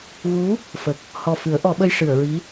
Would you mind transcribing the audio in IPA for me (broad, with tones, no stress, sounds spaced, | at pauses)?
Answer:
ɣ u˧˥ | f ə˨˩ k̚ | h ɔ˨˩ f ɨ˨˩˦ ə̯ ʔ ɔ˨˩˦ ɓ ə˧ j ʂ ɨ˨˩˨ ə̯ ɹ i˧˥